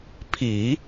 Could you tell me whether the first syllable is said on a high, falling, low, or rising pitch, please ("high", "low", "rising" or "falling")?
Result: low